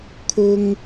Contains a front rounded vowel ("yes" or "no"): no